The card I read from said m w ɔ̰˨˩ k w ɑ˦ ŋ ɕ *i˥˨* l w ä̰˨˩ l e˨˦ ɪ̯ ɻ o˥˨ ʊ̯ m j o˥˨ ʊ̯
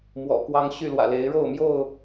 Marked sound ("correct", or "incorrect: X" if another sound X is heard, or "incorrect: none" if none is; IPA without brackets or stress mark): incorrect: y˥˨